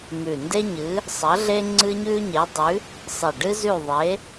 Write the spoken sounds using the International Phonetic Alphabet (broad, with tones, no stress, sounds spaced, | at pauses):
m ʉ˨˩ n d e˦ ɲ ɨ˨˦ | sˤ ɐ˨˦ ɮ e˦ ŋ͡ǀ ɨ˦ ɲ ʉ˦ ɲ e˨˦ dˤ ʉ˨˦ | sˤ i˨˩ ɖ ɨ˦ z ʉ˦˨ ðˤ e˨˦